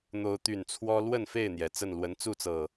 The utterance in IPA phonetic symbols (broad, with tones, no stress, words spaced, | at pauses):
n̪o˨˦ʊ̯t̪y˨˩nt͡sʰwɔ˦ lwə˥˨nfe˥˨ɪ̯n̪jɛ˩ t͡sə˥˨nlwə˨˦n t͡su˥˨t͡sɤ˨˩